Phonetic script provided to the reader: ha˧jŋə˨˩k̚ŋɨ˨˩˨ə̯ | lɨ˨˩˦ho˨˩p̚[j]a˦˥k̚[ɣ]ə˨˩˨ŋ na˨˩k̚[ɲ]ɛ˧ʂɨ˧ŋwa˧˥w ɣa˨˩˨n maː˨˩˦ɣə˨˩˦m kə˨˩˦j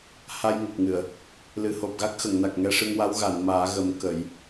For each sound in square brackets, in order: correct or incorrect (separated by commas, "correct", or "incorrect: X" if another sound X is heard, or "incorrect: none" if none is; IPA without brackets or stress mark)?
incorrect: ɣ, incorrect: x, incorrect: ŋ